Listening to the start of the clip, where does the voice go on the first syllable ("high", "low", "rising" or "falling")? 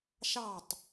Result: falling